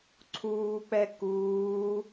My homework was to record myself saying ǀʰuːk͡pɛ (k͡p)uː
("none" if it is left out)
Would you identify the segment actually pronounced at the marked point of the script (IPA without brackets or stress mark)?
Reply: k